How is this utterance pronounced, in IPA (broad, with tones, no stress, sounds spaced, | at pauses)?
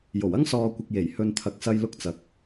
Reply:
j o˨˩ w ɐ˥ ŋ s ɔː˨ kʷ ɪ˨ k̚ j e˨˩ j h ɵ˨ n t̪ʰ ɐ˨˥ k̚ s ɐ˧ j l ʊ˧ k̚ t͡s ɐ˨ k̚